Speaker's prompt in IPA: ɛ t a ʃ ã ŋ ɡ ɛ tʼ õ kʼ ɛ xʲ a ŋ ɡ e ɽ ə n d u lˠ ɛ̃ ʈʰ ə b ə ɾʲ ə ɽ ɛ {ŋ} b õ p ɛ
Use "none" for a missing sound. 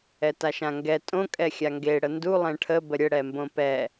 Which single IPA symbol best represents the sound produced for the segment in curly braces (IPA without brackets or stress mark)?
m